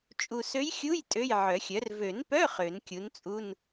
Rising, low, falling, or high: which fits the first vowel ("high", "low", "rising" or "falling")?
low